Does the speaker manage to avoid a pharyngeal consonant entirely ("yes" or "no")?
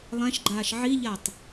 no